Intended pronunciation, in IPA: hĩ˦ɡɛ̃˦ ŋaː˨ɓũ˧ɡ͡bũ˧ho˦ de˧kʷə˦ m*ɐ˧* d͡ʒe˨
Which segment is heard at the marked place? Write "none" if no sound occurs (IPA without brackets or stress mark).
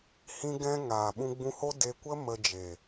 ə˧